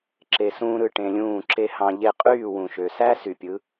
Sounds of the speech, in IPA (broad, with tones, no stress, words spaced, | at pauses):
ǁe˧sũː˥ɾɯ˥˩ ʈẽ˧lʲũː˥˩ǁe˥ hɑ̃˧ʎe˥˩ qʼyː˥˩wũ˩ʃø˩sæ˥ sy˩pʲɯ˩˥